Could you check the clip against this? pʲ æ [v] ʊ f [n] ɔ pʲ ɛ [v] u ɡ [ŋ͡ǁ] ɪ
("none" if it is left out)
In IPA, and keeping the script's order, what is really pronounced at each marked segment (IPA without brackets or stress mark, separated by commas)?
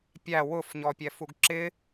w, ɲ, f, ǁ